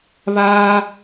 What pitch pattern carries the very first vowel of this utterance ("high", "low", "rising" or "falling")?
high